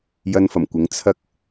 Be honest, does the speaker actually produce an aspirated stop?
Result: yes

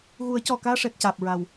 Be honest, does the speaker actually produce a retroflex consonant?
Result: yes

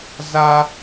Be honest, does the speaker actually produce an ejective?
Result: no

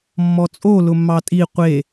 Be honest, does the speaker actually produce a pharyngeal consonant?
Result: no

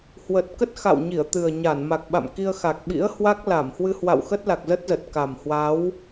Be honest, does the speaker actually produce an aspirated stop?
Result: no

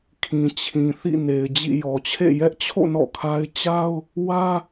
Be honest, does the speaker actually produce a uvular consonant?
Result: no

